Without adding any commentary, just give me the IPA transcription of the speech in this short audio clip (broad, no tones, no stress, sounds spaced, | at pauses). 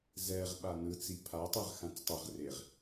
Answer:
z ɛ ʁ ɓ a n ɯ t͡s i pʰ a tˤ ɛ ʁ x ã t͡s tˤ ɛ ʁ r e ʁ